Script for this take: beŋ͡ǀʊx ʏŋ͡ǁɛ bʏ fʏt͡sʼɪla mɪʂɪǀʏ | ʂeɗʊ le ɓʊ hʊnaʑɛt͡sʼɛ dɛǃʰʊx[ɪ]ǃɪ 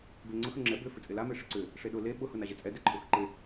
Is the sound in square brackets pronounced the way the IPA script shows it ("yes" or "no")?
no